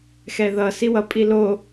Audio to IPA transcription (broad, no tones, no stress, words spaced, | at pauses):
xɛðʌ siwʌpʼi lo